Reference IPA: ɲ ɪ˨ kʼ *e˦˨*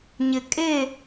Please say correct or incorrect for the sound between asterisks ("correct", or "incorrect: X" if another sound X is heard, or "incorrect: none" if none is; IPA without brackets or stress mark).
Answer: correct